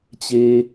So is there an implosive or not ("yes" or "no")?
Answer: no